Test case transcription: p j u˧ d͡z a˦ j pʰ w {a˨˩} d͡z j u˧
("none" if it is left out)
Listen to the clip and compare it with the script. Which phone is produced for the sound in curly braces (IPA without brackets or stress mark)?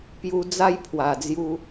a˨˩